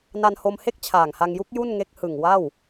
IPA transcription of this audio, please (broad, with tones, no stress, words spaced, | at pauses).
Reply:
na˧nho˧mhe˥˩k̚ t͡ɕʰaː˨˩ŋha˧ŋju˦˥k̚ ju˥˩nŋe˦˥k̚ hɯ˨˩ŋ wa˥˩w